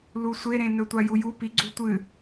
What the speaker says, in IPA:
l u sʷ e ɾ ẽ n ɵ tʷ a j u j u p i ɡ͡ǀ u tʷ ɨ

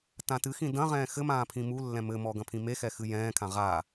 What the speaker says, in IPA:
t ã t ɨ x ĩ d ɐ̃ ʁ ɛ̃ː x ɘ m ãː pʰ ĩ m u lː ɛ̃ m ɘ m ɔ ɡ ɐ̃ pʰ ĩ m e x ɛ x ɨ j ɛ̃ː kʰ ã ʁ a

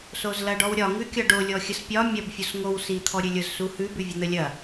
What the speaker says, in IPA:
s o z l ɐ ɖ ɔ w ɾʲ ɒ ŋ ʉ kʲ ɒ ɖ o lʲ ɔ xʲ ə s pʲ ɒ mʲ ɐ b fʲ o s ŋ o w s i t̪ʰ ɔ ɾʲ ʉ lʲ ʊ z s u h ʉ b ʉ vʲ ʊ n̪ ə lʲ ɐ

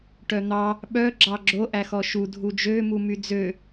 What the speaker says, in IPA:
ʈ œ n̪ ɑ | ɓ œ ɡ͡ǁ ɑ ɡ͡ǁ o ʔ æ x ɔ ʃ u dʱ u d͡ʒ ø m u m y d͡z ø

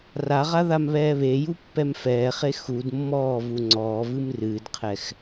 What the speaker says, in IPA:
r a ʁ a ð a m β ɛː β e j u pː ɛ m f ɛː χ e x u d mː ɔː v u ŋ͡ǀ ɔː v ɨ m r ɨː d qʰ ɛ x

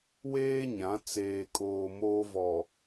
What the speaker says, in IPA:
w eː˦ ɲ ã˨˦ t͡s eː˨ kʼ oː˨ m oː˦ v ɔ˨

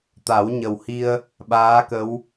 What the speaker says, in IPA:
t̪ a˨˩˦ w ɲ ə˨˩ w h i˧ ə̯ | ɓ aː˧˥ k ə˧˥ w

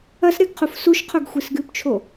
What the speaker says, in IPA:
ɐ s ɾ e ɡ qʰ u f s u ʃ qʰ o ɡ xʷ i s ɡ ʉ p t͡ʃʰ o

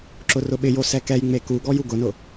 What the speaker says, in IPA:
ǁ ʊ r ʊ ɓ ɪ j o s ɛ k ɛ j ŋ͡m e k u ɡ ɔ j u ɡ ʊ n ʊ

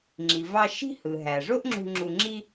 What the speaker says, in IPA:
ŋ͡ǁ i˩ v ɑ˧ ʃ i̤˥ h ɯ˩ ɦ æ˩ ʐ o˥ ʔ ŋ͡ǁ ṳ˧ ŋ͡ǁ u˧ ŋ͡ǁ i˥

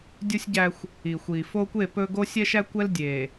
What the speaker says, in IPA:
dʲ u˦ sʲ ɟ æ˦ xʷ | i˨ xʷ i˨ f o˦ kʷ e˦˨ p ɵ˦ ɡ o˦ sʲ ɛ˦ ʃ æ˦ kʷ ɛ˦ l dʲ e˨

